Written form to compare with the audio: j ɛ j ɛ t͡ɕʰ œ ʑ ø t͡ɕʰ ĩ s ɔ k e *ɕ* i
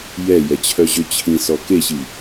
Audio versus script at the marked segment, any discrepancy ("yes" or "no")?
no